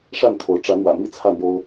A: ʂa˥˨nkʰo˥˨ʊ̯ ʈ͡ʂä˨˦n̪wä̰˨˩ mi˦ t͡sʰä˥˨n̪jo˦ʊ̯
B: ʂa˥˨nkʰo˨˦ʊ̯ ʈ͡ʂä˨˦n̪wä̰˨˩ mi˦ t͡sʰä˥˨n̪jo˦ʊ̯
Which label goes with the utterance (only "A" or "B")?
B